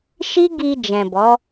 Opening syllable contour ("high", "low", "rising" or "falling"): high